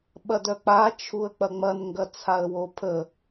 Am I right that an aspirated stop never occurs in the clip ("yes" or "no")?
no